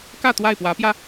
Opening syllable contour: falling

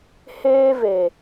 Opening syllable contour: high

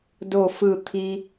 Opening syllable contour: falling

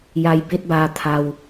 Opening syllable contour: low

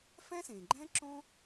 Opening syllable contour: high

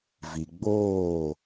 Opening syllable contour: low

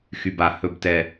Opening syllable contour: low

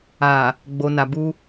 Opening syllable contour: low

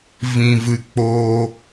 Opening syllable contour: low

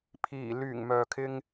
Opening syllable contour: low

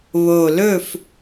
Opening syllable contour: low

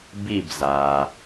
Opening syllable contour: falling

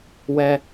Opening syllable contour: high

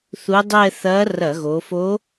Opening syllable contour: rising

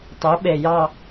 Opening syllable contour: rising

